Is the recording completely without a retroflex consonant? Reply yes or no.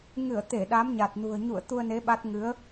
yes